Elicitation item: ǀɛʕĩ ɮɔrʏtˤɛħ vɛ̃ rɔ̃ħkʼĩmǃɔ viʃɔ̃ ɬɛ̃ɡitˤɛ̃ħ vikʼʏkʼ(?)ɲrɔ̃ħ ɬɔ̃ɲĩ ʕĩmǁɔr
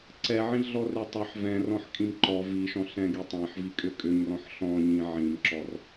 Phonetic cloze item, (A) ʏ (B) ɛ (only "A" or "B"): A